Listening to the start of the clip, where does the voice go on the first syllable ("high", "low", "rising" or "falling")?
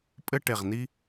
high